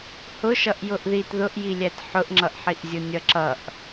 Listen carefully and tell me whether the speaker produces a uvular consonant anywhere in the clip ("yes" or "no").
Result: no